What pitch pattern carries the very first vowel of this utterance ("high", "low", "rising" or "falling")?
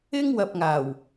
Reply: high